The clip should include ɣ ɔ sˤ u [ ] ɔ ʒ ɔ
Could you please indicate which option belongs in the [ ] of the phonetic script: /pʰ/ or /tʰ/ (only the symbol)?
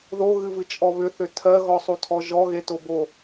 tʰ